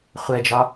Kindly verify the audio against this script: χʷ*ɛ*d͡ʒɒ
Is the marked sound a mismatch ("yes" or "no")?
no